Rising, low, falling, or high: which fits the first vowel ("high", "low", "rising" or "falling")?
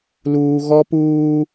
high